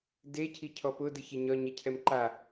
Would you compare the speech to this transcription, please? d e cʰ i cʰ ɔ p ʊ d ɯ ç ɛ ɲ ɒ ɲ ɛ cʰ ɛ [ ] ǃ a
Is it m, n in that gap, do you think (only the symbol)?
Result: m